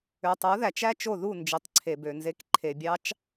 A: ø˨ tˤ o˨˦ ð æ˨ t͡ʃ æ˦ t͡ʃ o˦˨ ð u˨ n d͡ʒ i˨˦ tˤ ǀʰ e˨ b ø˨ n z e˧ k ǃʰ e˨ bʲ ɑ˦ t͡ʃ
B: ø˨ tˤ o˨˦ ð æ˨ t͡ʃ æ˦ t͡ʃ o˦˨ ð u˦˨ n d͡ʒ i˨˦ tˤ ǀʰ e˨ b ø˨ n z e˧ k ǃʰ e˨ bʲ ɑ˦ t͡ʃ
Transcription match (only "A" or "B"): B